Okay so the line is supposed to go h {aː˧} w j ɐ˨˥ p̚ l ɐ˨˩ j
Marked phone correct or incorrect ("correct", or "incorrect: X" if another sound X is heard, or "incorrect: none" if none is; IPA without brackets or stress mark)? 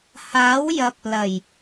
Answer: incorrect: aː˨˥